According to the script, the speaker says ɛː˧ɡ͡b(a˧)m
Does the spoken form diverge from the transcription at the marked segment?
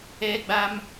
no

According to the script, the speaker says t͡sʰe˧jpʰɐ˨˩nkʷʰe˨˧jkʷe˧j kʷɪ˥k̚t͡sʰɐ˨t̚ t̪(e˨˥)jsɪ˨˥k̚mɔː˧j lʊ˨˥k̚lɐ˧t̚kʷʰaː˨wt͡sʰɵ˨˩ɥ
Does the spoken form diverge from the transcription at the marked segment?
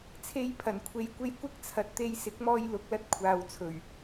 yes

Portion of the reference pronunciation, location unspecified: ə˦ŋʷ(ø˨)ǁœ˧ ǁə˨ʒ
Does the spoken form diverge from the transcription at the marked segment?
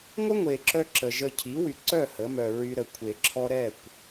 yes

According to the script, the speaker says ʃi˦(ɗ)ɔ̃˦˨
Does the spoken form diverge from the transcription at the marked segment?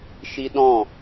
no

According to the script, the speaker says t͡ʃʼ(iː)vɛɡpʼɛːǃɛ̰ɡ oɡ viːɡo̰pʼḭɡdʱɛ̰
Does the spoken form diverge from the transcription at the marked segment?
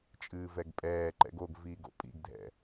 yes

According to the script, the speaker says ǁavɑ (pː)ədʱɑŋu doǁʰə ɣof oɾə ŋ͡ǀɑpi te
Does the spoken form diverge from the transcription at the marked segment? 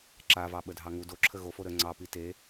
yes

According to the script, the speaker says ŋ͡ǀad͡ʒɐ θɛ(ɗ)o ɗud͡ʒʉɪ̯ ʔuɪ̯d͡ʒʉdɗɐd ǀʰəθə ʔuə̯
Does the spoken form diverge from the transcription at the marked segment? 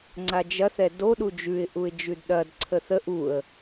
yes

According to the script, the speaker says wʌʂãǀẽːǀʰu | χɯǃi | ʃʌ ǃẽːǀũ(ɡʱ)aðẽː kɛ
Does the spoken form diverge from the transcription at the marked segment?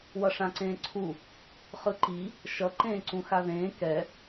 yes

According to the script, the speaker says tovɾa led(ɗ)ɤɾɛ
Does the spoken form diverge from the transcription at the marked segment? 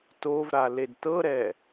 yes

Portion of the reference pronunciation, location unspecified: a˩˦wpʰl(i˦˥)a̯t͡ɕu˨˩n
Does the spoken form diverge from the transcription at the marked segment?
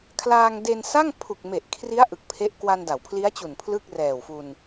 no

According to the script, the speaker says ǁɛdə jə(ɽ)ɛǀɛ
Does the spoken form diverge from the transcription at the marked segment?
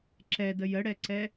no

